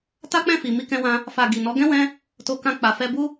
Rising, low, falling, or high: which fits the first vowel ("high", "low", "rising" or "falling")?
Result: high